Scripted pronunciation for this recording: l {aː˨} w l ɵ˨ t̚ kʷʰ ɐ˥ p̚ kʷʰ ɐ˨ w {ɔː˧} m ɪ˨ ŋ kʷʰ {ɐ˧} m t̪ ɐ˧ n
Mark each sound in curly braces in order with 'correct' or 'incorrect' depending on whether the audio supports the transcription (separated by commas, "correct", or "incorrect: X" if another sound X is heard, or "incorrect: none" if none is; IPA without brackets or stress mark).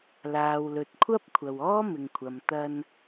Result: correct, incorrect: ɔː˥, incorrect: ɐ˨